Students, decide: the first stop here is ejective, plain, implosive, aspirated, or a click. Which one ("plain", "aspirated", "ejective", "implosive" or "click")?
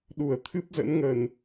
implosive